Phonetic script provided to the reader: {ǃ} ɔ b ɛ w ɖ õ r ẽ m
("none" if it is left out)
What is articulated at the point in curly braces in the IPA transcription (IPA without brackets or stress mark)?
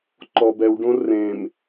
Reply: ǃ